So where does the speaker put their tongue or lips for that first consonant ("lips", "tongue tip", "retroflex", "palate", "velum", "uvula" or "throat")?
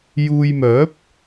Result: palate